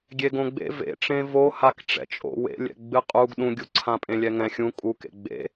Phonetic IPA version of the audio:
ɡʲ e ɡ õ ɡ͡b ḛ v ḛ ʈ͡ʂ ẽ v o h a k ʈ͡ʂ ɛ̰ t͡ʃʼ o̰ w ḛ lʲ ɛ̰ ɡ͡b ɨ qʼ u ɡ ɗ ũ ɡʲ u ǀʰ ã pʼ ẽ lʲ ɛ ŋ ɛ̃ xʲ ũ kʼ u k ḛ ɡ͡b ḛ

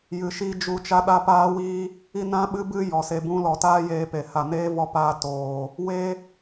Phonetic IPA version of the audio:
j ɨ˧ ʃ i˦ d͡ʒ u˦ t͡ʃ a˦ ɗ a˦ p aː˦ w iː˦ | i˦ n ã˦ ɓ ɨ˦ b ɨ˦ j ɔ˨ s e˧ b ũ˦ l ɔ˧ t aː˦ j eː˧ p e˨ h a˨ n eː˦ v ɔ˧ p aː˧ t oː˨ | w e˦

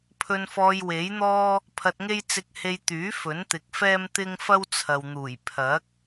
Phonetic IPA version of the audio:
pʰ ɵ˧ n f ɔː˧ j w e˨˥ j n̪ ɔː˥ | pʰ ɐ˧ t̚ ŋ e˥ j t͡s ɪ˧ k̚ h e˧ j t̪ yː˨˥ f ɵ˨˥ n t̪ ɪ˨˥ k̚ f ɛː˥ m t̪ ɪ˥ ŋ f ɐ˥ w t͡sʰ ɐ˨ w n̪ uː˨˩ j pʰ ɐ˨˥ k̚

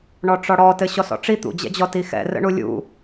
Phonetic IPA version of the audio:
ɳ ɔ ʈ͡ʂ ɔ ɽ ɔ t ɘ ɕ ɔ s ɔ̰ ʈ͡ʂ i t̪ ṵ d͡ʑ ɛ̰ d͡ʑ ɔ t i x ɛ̰ r ə̰ ɳ u lʲ ṵ

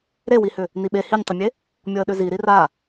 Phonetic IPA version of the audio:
ɾ e w i h ʏ | n i ɓ e h i nʲ tˤ ʏ mʲ e | mʲ ɔ ə̯ ɗ ʏ z i ɾ i r a

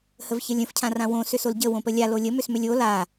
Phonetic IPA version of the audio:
h ə v ç ə lʲ ə̃ f cʰ ã r ã w õ s ʏ s o l ɟ ə w õ p ə lʲ a l o lʲ ə m ʏ s m ʏ lʲ o l a

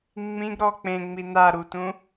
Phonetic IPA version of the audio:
ŋ͡m ĩ ɡ ɾ ɔ k͡p ẽ ŋ͡m i n a ɾ u t ũ

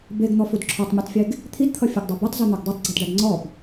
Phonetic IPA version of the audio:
b e ɡ n̪ ɔ f u d ǁʰ ɔ tˤ mʲ e tˤ fʲ e ɡ | t̪ʰ i d t̪ʰ ʌ fʲ ʌ ɡ dˤ a b o tˤ z u n̪ o ɡ dˤ e tˤ ɡ͡ǀ i d ɖ a d ŋ͡ǀ ɔ b

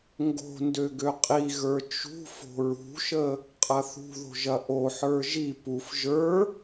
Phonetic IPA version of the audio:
ŋ ɡ o̤ n d ø ɡ ø qʼ i ɣ ə˞ t͡ʃ ṳ f o̤ ɹ ṳ ʃ ə | qʼ ɐ θ ṳ ð o̤ ʒ ɐ ʔ o ħ ə˞ ʒ i p u f ʒ ə˞

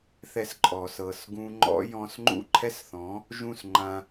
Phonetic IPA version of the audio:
θ ɛ˧ s ǃʼ ɔ˩ s ɤ˩ s ɡ ũ˧ ŋ͡ǃ ɔ̰˥ j ɔ̃˧ s ŋ͡ǃ ṵ˥˩ ǃʰ ɛ˥ s θ ɔ̃˩˥ | ʒ ũ˥˩ s ŋ͡ǃ ã˧

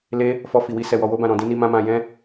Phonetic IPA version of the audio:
l e˧ | f ɔ˧ f i˨ w i˧ s ɛ˨ w ɔ˨ w o˧ b ã˨ ɾ ɔ̃˨ d ĩ˧ n i˧ m ã˦ m ã˧ j ɛ̃˦

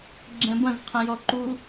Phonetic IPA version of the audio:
ɡ͡ǁ ɛ̃ b ɐ̃ z qʰ ɐ̃ j ɔ ǃ u

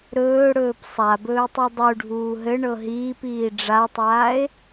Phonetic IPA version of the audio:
ɾ ɵː ɽ ɵː p sˤ a b ɵː tˤ i dˤ u ɖʱ uː ɦ ɘ ɳ ɤ ɦ iː p iː ɖ͡ʐ a tˤ aː e̯

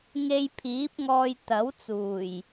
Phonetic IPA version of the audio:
ŋ e˧ j pʰ iː˨˥ p̚ ŋ ɔː˧ j t̪ ɐ˨˥ w t͡s uː˨˩ j

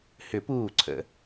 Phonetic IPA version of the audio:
h ʏ˨˩˦ p uː˧˩ ǀʰ ə̰˨˩˦

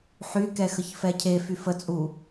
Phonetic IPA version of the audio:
ħ y k ɛ x ə ç f ɛ cʰ e f y f ə t͡sʼ u

